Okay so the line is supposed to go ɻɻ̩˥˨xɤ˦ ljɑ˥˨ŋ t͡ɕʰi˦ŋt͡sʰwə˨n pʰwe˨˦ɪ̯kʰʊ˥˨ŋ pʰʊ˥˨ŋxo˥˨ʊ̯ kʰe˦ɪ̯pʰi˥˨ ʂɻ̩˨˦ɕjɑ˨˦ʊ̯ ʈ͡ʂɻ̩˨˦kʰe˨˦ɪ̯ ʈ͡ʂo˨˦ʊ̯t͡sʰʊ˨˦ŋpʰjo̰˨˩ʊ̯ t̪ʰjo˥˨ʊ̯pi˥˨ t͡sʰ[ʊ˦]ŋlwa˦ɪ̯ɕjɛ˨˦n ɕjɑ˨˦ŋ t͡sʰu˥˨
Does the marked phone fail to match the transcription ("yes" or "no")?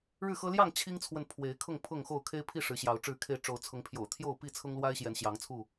no